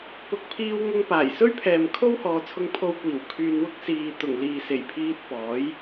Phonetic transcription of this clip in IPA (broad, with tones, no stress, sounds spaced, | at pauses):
p ʊ˨ k̚ pʰ iː˧ w ŋ ʊ˧ ŋ p aː˨˩ j s ɵ˥ ɥ pʰ ɛː˨ m kʰ o˥ w h ɔː˨˧ t͡sʰ ʊ˧ ŋ pʰ o˧ w kʷ iː˨˩ w kʰ yː˧ n w ʊ˥ k̚ s iː˨ t̪ ʊ˨˩ ŋ l iː˨ s e˨˩ j pʰ iː˧ t̚ p ɔː˨˥ j